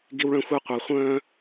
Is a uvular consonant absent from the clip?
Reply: no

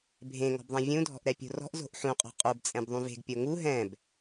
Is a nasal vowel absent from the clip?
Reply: no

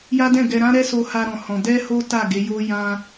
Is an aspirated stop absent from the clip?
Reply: yes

